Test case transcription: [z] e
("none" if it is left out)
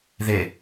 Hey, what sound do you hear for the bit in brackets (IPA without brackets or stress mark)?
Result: ð